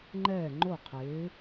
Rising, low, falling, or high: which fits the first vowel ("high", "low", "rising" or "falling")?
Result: falling